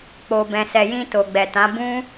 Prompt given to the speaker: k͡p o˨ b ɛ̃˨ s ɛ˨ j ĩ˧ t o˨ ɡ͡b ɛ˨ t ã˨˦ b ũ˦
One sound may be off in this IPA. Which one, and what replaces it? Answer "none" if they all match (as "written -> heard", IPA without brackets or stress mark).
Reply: none